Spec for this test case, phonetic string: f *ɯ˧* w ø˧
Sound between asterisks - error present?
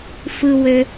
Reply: no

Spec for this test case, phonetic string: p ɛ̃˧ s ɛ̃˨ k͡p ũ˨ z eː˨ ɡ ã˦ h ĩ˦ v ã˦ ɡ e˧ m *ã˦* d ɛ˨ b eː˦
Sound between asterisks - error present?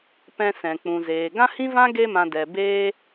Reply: yes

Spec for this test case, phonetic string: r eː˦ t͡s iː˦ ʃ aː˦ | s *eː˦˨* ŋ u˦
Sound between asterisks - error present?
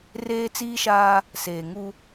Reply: yes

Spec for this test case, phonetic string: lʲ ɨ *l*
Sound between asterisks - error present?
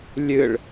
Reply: yes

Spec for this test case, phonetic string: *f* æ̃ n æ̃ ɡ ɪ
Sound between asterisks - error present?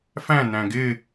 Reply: no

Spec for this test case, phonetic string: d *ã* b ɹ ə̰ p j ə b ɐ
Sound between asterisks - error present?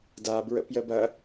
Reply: yes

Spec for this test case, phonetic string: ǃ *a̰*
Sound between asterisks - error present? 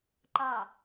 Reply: yes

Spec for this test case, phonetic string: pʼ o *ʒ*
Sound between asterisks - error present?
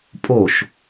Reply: yes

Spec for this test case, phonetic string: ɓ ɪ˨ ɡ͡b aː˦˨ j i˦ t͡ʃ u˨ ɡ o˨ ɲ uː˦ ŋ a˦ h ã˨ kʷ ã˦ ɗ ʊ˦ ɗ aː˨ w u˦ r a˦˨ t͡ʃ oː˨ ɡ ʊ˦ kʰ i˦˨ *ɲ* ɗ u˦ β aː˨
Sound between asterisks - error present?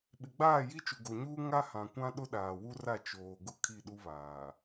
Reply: yes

